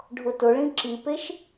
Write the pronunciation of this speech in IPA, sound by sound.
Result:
ɖʱ ʊ t ʊ ɭ ĩ ǁ i p e ʃ

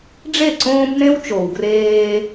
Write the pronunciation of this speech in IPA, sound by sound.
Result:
ɖ͡ʐ e˦˨ ǀ õː˦ b n ẽ˦ w t͡ʃ o˨ w ɡ r eː˦

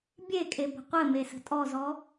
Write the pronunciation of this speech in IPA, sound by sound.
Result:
bʲ e kʼ e b ə̤ qʷ ɘ m e s ə̤ tʼ ɔ z ɔ

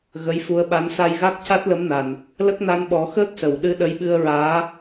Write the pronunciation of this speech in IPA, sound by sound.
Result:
ɣ ə˧˥ j f u˧˥ ə̯ ɓ a˧˥ n s a˧ j ɣ a˦˥ k̚ c a˦˥ t̚ l ə˧˥ m n a˨˩ n | l ə˦˥ k̚ n a˧˥ n ɓ ɔ˨˩˦ x əː˦˥ k̚ s ə˨˩˨ w ɗ ɨ˧ ɗ ə˧˥ j ɓ ɨ˧ ə̯ ɹ aː˧˥

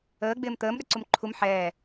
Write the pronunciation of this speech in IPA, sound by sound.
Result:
əː ɡ͡b ɪː m t̪ əː m ɗ ə ǀ u m ǃʰ u m ħ ɛː

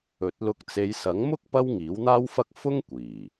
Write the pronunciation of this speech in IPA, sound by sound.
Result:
ɵ˨˥ t̚ l ʊ˧ k̚ t͡s e˨˧ j s ɐ˨˥ ŋ m ʊ˥ k̚ p ɐ˥ w ŋ iː˨˥ w n̪ aː˥ w f ɐ˥ k̚ f ʊ˥ ŋ kʷ iː˨˩

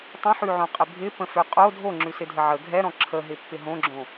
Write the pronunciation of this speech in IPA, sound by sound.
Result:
tˤ ə̃ ħ ʉ ʕ õ qʼ ɪ bʱ ɪ p ə̃ f ø qʼ o dʱ o ŋ͡ǁ ʉ s ɪ dʱ ə ʕ ə ɡʱ ɛ ɾ ɔ̃ ǁʰ ə ɦ ɪ pː ɪ ɦ õ ɡ͡ǁ õ

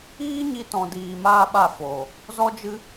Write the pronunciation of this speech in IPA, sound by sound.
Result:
iː˦ ɲ i˧ t ɔ̃˨ d iː˨ m aː˦ ɓ a˦˨ f oː˨ | z ɔ˦ d͡ʒ ɨ˦

